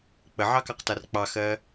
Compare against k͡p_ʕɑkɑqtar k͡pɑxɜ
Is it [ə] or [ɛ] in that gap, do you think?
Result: ə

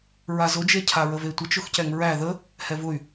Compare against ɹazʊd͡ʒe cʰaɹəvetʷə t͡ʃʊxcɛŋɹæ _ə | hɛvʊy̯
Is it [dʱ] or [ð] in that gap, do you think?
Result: ð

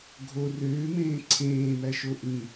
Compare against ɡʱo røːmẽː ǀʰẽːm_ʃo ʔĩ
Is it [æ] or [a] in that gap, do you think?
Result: æ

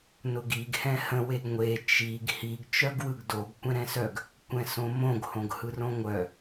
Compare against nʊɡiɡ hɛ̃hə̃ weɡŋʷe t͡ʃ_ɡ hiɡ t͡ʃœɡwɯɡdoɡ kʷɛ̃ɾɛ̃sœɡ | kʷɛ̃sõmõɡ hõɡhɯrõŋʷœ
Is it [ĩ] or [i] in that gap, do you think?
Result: i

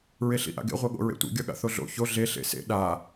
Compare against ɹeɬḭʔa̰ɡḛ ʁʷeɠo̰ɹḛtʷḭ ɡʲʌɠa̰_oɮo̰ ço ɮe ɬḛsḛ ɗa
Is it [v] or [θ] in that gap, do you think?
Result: θ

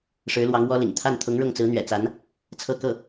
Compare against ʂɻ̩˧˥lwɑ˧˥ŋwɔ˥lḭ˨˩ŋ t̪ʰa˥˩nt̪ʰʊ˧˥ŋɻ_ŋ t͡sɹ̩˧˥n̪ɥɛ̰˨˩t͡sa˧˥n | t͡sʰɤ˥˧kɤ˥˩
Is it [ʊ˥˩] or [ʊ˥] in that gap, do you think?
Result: ʊ˥˩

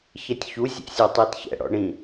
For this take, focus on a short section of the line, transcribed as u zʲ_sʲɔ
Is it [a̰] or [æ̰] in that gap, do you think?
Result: æ̰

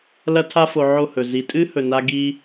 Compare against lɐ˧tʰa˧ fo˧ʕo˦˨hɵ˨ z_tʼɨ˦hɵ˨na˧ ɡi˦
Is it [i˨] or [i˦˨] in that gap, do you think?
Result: i˨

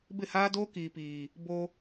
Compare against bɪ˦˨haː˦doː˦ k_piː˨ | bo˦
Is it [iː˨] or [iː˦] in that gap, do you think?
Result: iː˨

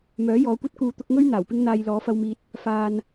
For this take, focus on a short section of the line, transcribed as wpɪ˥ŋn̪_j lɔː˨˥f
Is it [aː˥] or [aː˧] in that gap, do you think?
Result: aː˧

